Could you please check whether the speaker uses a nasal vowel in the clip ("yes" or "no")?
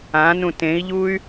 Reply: yes